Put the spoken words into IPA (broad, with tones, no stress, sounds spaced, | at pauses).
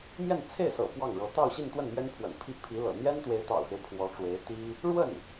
m j ɛ˥˧ n t͡sʰ e˥˩ ɪ̯ s ɤ̰˨˩ p w ɑ˥˩ ŋ ɻ ɤ˧˥ t̪ ɑ˥˧ ʊ̯ ɕ i˥˧ n t̪ w ə˥˩ n m ɥ ɛ˥ n pʰ w ə̰˨˩ n pʰ i˥ pʰ i˧˥ l ɤ̰˨˩ n̪ j ɛ˥ n t̪ w e˧˥ ɪ̯ t̪ ɑ̰˨˩ ʊ̯ x e˦ ɪ̯ pʰ w ɔ˧˥ ʈ͡ʂ w e˧˥ ɪ̯ t̪ i˥ | ɻ w ə˥˩ n